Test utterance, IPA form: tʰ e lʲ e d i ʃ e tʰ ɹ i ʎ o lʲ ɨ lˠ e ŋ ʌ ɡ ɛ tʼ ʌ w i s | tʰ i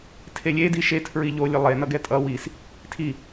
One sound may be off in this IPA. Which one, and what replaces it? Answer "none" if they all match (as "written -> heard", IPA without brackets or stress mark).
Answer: ŋ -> n